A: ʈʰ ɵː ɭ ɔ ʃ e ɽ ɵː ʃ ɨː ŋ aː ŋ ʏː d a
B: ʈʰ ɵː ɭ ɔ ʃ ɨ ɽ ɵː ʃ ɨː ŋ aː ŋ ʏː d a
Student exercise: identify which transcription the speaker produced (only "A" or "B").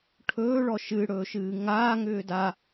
B